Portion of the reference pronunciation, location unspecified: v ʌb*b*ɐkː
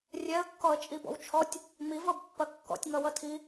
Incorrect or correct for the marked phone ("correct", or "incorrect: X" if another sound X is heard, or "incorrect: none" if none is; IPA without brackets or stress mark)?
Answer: incorrect: pː